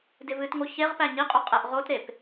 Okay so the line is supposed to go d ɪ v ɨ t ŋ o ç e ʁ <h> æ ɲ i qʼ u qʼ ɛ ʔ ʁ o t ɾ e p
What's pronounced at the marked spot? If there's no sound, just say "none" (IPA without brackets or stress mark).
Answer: p